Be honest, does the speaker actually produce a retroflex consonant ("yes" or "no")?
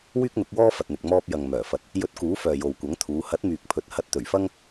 no